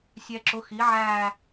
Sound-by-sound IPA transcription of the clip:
sʲɛ˨ǁʊ˩˥ xi˩˥ʕæ˦˨

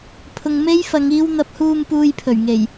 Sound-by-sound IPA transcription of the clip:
pʰʊ˨ŋme˥jfɐ˨˧ŋ iː˧wn̪ɐ˨˥p̚huː˧m puː˧jpʰɵ˨˩ɥŋe˨˩j

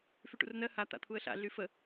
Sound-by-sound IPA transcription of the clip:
fyʈṵrnɜ ha t̪a̰t̪ʰuə̯ɬa̰ ɮyfə

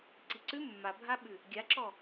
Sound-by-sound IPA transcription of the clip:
ǀiǀʉ mːabʱaɓʉ | ɡʲaǁɔ

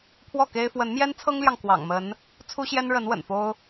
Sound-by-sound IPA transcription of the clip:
pʰwɔ˥˨ke˦ɪ̯ fwə˨˦nmjɛ˦n t͡sʰɤ˦ŋljɑ˨ŋ kwɑ̰˨˩ŋmə˨˦n | t͡sʰu˦ɕjɛ˦nɻə˨˦n wə̰˨˩nfo˦ʊ̯

